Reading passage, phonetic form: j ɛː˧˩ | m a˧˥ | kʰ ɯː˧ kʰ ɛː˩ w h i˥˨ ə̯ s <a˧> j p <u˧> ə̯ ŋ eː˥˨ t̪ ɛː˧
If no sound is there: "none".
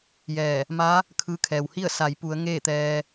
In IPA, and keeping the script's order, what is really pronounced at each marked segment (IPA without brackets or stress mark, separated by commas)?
a˩˧, u˩˧